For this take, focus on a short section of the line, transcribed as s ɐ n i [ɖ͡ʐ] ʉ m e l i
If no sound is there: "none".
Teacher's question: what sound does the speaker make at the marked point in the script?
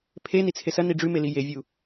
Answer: ɖ͡ʐ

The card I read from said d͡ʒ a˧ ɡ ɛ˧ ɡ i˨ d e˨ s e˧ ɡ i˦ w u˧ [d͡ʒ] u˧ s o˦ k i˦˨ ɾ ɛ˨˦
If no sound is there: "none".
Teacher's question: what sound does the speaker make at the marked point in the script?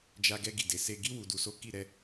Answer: d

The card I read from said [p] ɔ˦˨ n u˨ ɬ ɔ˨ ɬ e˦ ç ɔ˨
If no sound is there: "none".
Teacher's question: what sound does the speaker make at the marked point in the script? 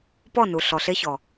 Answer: p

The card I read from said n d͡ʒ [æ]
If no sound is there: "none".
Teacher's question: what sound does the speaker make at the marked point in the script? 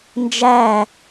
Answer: æ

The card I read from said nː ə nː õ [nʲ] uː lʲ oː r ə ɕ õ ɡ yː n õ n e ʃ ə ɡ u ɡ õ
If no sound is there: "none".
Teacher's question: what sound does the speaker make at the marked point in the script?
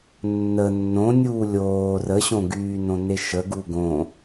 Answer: nʲ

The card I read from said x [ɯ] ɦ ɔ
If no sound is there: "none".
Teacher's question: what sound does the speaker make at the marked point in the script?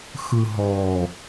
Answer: ɯ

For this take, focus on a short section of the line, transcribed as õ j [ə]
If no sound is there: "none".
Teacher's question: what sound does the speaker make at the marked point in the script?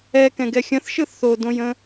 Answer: ə̃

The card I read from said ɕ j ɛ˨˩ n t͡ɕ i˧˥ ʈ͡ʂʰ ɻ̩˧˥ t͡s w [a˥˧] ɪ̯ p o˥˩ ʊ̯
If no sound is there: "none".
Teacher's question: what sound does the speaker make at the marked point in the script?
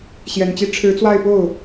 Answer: a˥˧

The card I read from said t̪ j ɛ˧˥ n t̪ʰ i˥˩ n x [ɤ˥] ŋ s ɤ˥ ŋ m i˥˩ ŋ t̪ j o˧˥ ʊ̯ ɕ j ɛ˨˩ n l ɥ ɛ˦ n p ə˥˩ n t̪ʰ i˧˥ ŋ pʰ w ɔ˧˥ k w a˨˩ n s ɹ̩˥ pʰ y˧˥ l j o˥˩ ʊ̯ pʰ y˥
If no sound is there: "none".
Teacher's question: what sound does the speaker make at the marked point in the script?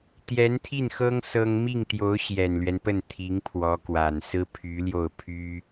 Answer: ɤ˥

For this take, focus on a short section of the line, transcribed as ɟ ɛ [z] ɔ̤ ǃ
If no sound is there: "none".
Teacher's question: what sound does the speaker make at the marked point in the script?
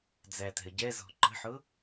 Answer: z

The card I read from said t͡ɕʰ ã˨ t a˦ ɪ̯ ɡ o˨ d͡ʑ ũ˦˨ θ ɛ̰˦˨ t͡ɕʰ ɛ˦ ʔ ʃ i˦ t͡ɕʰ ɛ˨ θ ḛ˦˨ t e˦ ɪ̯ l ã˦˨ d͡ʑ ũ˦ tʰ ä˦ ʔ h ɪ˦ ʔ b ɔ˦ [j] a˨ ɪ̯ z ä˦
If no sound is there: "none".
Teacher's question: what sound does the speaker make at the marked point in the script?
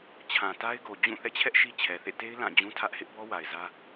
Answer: w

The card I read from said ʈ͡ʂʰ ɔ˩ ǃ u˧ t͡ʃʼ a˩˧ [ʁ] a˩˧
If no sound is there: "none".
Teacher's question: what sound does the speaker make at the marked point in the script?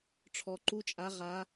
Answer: ʁ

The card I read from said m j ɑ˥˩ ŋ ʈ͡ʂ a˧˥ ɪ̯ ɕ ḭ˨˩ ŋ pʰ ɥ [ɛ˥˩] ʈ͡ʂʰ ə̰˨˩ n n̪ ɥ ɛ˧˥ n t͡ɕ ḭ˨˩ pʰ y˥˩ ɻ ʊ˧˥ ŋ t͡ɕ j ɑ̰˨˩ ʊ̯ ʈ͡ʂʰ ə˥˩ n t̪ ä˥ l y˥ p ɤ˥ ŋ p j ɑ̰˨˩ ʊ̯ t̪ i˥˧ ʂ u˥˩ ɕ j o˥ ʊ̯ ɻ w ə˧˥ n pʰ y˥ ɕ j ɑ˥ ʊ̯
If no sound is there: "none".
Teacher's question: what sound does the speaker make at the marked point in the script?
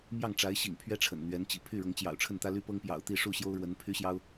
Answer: ɛ˥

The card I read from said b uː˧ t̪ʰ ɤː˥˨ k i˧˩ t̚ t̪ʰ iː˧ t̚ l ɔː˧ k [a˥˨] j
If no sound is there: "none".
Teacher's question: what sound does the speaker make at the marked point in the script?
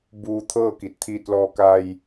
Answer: a˧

